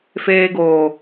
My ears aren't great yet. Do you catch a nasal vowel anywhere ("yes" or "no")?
no